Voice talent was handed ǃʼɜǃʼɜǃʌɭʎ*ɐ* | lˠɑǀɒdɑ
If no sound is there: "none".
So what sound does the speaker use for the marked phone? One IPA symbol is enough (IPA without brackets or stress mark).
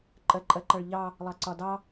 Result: ɑ